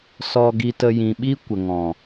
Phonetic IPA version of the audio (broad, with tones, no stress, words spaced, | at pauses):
sɔ˧ɡi˧tə˧ jĩ˨ɓi˦ kʷə˨ŋɔ̃˨